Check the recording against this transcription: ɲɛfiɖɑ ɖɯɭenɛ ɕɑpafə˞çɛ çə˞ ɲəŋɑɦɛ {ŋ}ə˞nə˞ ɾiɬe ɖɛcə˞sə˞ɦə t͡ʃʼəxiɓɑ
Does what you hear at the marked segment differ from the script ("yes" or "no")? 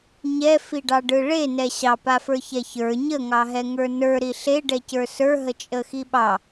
no